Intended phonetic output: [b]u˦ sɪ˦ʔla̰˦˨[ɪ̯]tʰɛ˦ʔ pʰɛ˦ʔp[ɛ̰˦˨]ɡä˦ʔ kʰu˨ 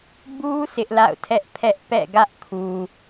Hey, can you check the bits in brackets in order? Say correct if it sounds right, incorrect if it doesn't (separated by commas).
correct, incorrect, correct